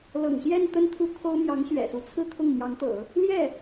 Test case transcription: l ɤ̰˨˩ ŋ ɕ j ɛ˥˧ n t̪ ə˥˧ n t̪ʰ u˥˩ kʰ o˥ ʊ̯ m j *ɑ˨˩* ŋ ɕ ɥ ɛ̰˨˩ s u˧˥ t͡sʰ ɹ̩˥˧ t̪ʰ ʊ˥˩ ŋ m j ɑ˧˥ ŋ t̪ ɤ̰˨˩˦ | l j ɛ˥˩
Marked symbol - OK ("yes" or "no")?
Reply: no